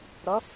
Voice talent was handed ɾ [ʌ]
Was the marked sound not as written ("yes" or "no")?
no